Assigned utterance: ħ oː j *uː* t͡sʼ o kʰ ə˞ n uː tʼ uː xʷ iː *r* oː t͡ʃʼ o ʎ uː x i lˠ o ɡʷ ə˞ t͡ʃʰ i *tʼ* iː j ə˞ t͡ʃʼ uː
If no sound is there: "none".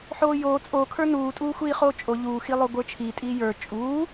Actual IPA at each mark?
oː, χ, tʼ

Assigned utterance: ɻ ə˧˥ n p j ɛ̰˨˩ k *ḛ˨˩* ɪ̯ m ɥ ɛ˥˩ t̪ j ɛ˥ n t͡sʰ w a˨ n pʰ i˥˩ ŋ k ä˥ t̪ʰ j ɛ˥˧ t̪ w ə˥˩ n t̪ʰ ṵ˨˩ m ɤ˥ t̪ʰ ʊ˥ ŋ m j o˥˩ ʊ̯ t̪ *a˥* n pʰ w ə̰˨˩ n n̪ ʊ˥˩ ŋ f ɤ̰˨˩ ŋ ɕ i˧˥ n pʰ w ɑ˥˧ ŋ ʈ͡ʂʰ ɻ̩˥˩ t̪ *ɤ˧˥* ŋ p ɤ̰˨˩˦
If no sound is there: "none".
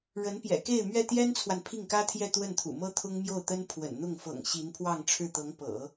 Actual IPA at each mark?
e˥˧, ə˥, ɤ˧˥

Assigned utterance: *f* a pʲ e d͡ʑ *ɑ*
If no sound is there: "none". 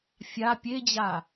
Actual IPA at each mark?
fʲ, a

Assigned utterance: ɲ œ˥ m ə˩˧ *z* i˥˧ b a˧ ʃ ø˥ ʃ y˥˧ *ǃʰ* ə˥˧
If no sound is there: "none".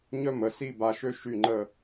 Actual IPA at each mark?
s, ŋ͡ǃ

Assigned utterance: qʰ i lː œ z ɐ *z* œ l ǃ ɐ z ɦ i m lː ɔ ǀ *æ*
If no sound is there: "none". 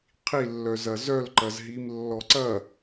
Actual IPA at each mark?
z, ɐ

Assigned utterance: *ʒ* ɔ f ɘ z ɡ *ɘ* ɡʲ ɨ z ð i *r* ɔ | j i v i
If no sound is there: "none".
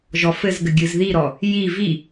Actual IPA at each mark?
ʒ, ɘ, ɾ

